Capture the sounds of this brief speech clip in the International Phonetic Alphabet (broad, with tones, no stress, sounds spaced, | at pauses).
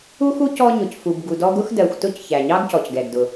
u˥ x u˥ c ɔ˦ ɲ ʊ˨ c f u˨ b ɡ u˨ d ɔ˦ ɡ ʊ˥ x d ɜ˨ xʷ t ʊ˥ c ç æ˩ ɲ ɑ˥ ɡ c ɔ˩ c ɡ ɛ˩ ɡ d ʊ˩